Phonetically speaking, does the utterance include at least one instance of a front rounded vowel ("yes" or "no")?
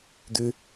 yes